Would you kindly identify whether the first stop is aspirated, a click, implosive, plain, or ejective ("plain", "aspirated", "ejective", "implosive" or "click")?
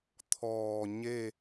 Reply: aspirated